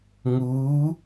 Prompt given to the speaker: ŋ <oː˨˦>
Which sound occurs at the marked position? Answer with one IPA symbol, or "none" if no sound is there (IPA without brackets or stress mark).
uː˨˦